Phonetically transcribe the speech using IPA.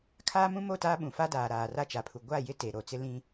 kʰ aː˦ m ũ˦ m o˦˨ t aː˦ ɓ ũ˨ f a˦ d aː˨ ɾ aː˨ r a˦ t͡ʃ a˨ pʰ u˨ ɡʷ a˦˨ j ɪ˦ t e˨ ɾ o˨ t͡s ɪ˦ l ĩ˦

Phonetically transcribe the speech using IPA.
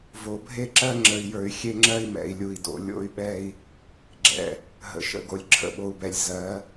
v o˨ bʱ e˦ ǁ ɜ˦ ŋ͡ǁ ə˦ i̯ j ə˞˦ y̯ xʲ e˦ ŋ͡ǁ ɜ˦ i̯ m ɛ̰˨ i̯ lʲ u˨ i̯ d o̰˨ lʲ o̰˦ y̯ ɓ ɛ˦ i̯ | ɡ͡ǁ ɛ̰˨ | ɦ ə̰˨ ʃ ə̰˦˨ ɡ o˨ lʲ ǁʰ ə̰˨ ɓ o˨ u̯ b ɛ˨ lʲ z ɜ˨˦

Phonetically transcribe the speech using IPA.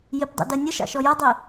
j ɪ p dˤ ɛ̰ d ɜ nʲ ə ʃ ɑ̰ ʃ ɔ j ʌ dˤ i

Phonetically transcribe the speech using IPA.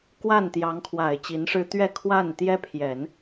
k w a˥˩ n t̪ j ɑ˧˥ ŋ kʰ w a˨˩ ɪ̯ t͡ɕ i˧˥ n ʂ ɻ̩˥ t̪ ɥ ɛ˥˧ kʰ w a˥˩ n t̪ j ɛ˥ pʰ j ɛ˨˩˦ n

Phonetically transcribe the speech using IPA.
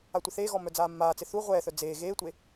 a tʷ ɪ θ eː ɣ ɔ m œ d͡z aː mː aː t͡s ɪ θ u ʁʷ ɛː θ œ d͡z eː ɣ eː tʷ e

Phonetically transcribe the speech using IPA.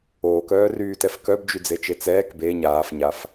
oː k œː r yː t ɛ f k œ b d͡ʒ y d͡z e t͡ʃ e t͡s ɛː k b e ɲ aː f ɲ a f

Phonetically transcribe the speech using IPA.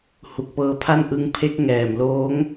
h u˨˩ k̚ p ɤː˧ pʰ a˥˩ n ʔ ɯ˦˥ ŋ pʰ e˦˥ k̚ ŋ ɛː˨˩ m l oː˦˥ ŋ

